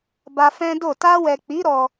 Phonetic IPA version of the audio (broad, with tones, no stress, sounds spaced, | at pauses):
b a˧ f ɛ̃˦ d o˦˨ t a˧ w ɛ˨ k͡p i˨˦ ɾ ɔ˧